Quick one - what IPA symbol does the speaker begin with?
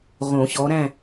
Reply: ʁ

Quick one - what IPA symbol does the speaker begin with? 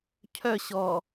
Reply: cʰ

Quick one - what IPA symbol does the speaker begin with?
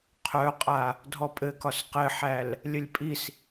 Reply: qʰ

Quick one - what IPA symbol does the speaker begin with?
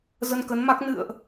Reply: z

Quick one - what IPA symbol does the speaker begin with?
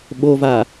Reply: ɓ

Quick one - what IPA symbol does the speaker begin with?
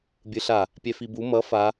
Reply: bʲ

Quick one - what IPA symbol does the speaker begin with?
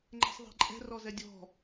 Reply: ŋ͡ǃ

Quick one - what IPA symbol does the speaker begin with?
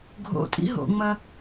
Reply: ɡʱ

